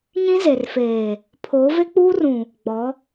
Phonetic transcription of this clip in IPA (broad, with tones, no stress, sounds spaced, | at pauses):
ɲ ĩ˦ z e˨ r f eː˨ | pʰ oː˨˦ v e˦ k͡p uː˦ r ũ˨ | ɡ͡b ɔ˨˦